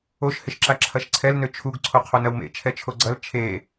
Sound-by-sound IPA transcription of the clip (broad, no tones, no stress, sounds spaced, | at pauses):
o ʃ h ɪ ʃ ǁ a ǁʰ ɐ ʃ ǀʰ ɛ l n ø t͡ʃʰ u ɡ ǀʰ o qʰ o n ɐ w m ḛ t͡ʃʰ ɛ t͡ʃʰ o ɡ͡ǀ ɐ l t͡ʃʰ e